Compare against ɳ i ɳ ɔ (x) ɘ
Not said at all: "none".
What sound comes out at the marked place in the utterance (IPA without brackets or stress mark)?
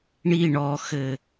x